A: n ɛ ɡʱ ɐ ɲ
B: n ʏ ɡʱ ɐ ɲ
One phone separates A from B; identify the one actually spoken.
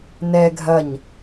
A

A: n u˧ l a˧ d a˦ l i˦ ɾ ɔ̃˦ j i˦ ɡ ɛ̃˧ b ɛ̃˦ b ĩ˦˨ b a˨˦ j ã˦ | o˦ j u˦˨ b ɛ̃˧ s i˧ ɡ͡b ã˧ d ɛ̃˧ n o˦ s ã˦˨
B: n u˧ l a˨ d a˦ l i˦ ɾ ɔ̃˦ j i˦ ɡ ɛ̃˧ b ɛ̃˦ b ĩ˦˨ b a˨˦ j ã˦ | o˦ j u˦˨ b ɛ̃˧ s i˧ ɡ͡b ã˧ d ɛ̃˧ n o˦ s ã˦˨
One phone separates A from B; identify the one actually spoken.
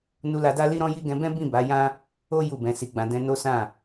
A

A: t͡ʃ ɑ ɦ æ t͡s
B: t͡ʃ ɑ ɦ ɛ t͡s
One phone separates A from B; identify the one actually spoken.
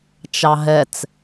B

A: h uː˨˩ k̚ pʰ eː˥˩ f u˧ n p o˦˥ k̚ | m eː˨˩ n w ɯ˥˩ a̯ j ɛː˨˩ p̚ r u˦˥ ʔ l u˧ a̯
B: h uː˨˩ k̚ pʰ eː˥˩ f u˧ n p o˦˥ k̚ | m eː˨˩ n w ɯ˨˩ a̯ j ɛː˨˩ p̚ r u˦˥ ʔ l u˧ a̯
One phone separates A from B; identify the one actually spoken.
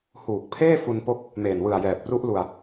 B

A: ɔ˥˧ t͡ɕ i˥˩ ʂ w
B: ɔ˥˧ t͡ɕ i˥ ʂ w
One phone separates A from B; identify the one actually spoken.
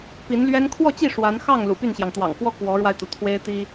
A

